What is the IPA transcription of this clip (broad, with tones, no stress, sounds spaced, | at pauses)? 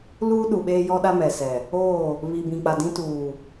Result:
l uː˦ ɗ u˨ ɓ eː˦ j ɔ˦ ɗ a˦ m ɛ˨ s ɛ˨ | oː˦˨ | β i˨ b ĩ˨ k͡p a˨ d ĩ˦ t uː˨